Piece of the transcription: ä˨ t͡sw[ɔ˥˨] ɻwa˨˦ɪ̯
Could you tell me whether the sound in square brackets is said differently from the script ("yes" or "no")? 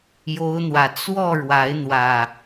no